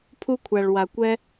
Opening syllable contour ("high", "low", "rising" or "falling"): high